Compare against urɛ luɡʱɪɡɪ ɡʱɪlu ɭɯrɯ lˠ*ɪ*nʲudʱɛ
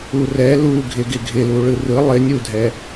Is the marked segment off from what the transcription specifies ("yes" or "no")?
no